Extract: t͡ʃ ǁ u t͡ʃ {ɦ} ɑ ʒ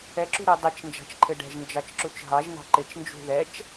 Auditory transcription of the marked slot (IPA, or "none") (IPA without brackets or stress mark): ɦ